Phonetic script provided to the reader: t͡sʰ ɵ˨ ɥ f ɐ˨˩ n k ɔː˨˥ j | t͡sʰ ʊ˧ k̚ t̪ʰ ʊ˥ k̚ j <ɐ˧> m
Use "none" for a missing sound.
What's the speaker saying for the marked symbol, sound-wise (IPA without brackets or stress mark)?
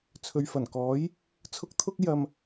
ɐ˧